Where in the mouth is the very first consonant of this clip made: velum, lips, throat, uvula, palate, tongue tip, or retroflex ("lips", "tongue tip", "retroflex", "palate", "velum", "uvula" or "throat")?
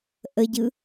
throat